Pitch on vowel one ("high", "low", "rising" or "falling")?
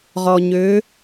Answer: low